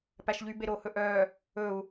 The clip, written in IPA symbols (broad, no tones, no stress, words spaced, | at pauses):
pæʃʎy beɾoːhɵʔœː | ɵu̯